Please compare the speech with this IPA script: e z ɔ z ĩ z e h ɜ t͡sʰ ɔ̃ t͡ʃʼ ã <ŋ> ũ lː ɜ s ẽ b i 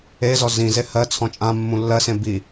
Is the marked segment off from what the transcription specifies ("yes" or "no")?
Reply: yes